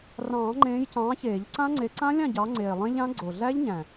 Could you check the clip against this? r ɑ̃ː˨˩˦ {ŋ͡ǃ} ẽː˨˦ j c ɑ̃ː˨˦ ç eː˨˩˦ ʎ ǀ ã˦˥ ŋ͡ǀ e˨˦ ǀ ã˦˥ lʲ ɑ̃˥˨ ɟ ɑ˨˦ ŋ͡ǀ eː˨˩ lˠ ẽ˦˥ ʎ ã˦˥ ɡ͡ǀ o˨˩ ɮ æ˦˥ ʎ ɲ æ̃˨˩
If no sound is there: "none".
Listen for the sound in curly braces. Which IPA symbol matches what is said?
ŋ͡ǃ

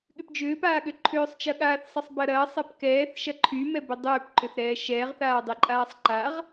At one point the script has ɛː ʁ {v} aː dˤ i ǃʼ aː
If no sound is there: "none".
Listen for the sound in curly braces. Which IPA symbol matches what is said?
θ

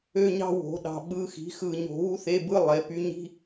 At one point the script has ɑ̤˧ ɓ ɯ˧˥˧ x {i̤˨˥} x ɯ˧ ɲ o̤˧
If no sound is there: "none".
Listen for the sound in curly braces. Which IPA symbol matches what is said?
i̤˨˥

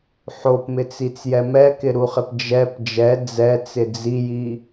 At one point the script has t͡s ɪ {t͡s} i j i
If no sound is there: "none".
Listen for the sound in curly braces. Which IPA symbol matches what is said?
d͡z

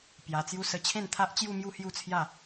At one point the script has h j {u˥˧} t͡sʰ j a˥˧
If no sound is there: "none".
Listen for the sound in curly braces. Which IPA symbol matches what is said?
u˥˧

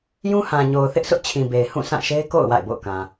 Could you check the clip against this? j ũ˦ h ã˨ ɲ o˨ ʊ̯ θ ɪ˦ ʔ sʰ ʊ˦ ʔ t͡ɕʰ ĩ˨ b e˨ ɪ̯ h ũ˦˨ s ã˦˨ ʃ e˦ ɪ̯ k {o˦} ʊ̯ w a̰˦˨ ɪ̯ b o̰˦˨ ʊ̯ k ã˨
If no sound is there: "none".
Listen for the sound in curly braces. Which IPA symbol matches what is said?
o̰˦˨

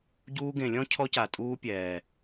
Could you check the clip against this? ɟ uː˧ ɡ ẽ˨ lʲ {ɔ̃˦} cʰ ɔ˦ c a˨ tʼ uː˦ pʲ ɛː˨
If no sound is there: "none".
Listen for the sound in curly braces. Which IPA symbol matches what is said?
ɔ̃˦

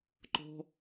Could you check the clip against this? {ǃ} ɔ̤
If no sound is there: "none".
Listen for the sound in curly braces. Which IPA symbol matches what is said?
ǃ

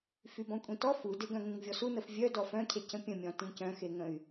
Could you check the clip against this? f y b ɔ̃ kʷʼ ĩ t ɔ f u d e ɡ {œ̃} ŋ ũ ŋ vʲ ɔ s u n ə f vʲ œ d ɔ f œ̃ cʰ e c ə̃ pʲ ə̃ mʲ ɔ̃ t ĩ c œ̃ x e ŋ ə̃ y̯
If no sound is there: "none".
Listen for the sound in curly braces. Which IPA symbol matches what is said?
œ̃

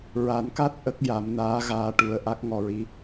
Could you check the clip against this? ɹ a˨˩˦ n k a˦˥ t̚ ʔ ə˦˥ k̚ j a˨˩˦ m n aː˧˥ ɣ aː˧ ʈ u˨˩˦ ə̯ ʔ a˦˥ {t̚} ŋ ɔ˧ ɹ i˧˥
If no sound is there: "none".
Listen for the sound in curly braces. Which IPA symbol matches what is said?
k̚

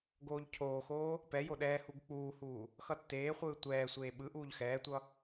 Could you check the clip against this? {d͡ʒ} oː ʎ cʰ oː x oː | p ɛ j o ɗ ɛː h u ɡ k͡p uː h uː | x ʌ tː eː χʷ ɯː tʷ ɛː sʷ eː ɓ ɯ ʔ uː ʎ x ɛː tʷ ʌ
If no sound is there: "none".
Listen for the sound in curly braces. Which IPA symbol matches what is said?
ɡ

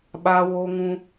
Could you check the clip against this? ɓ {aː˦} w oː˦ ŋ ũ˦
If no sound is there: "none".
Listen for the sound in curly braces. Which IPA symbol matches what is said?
aː˦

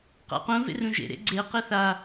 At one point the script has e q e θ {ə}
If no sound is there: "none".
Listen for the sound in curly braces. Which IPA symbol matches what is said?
a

